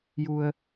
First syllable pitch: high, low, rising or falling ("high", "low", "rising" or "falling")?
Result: low